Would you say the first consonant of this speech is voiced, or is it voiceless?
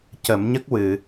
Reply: voiceless